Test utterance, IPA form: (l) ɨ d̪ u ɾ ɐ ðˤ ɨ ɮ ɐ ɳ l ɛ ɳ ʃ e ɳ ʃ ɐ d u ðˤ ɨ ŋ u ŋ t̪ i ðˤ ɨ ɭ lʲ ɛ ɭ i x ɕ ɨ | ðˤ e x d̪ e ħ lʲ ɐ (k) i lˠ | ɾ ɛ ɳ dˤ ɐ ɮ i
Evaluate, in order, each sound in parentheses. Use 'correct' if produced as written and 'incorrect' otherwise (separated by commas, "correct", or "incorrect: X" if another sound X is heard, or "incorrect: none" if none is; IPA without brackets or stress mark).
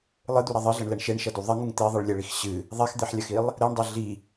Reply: incorrect: lˠ, incorrect: x